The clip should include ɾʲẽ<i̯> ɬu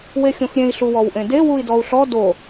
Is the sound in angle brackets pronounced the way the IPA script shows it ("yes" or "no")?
yes